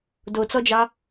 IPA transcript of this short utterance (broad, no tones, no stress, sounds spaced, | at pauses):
d o t͡s ɔ d͡ʒ ɑ